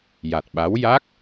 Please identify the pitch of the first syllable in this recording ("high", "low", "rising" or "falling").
low